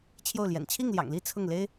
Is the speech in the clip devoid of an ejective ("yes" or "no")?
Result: yes